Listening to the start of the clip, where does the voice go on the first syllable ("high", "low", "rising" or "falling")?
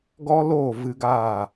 high